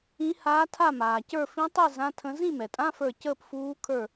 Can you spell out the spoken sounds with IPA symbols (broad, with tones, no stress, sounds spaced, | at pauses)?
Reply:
ĩ˧˥ h aː˧˥ tʰ a˥˨ m aː˩ c ə˞˥˨ f ĩ˧˥ tˤ i˥˨ z ã˧˥˧ tʰ ə̃˧˥ z ĩ˥˨ m ɛ˩ tʼ ã˧˥˧ f ə˞˧˩ c əː˥˨ p f uː˧˥ kʰ ə˞˥˨